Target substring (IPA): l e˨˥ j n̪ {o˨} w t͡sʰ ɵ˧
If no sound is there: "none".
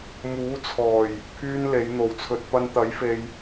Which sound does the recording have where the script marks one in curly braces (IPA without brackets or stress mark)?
o˨